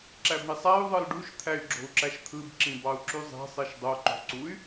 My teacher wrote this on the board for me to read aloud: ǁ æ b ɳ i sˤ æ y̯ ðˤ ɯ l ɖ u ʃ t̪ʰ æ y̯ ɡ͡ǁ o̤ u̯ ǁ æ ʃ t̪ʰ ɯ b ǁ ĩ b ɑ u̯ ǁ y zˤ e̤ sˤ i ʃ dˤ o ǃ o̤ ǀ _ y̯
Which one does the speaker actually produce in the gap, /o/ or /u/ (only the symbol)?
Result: u